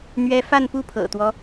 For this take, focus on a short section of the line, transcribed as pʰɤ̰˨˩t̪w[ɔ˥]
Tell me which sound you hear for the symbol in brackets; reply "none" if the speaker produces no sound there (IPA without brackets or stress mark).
ɔ˦